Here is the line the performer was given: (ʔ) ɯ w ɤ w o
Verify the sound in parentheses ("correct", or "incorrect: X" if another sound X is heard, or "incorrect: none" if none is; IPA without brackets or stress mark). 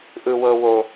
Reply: correct